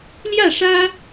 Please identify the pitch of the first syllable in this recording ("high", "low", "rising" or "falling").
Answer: falling